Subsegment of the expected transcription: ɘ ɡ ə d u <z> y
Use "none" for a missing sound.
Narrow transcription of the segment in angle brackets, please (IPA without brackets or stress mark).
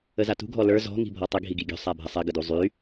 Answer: zˤ